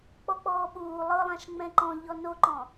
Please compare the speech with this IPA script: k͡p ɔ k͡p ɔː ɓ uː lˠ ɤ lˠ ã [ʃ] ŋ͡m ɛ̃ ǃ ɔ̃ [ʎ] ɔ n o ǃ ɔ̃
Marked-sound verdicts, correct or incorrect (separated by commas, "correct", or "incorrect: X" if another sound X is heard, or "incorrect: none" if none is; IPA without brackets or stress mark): correct, correct